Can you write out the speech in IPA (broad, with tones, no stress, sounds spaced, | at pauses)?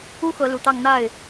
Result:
u˥ x ɤ˧˥ l u˨˩ t̪ ɑ˥˧ ŋ n̪ a˥˩ ɪ̯